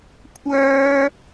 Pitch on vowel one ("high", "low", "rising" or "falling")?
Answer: high